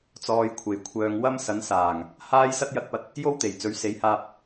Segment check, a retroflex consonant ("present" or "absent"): absent